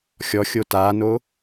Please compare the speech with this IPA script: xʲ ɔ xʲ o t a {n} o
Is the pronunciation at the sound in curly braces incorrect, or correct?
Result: correct